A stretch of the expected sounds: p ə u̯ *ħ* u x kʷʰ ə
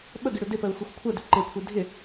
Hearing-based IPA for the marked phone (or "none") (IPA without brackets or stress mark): x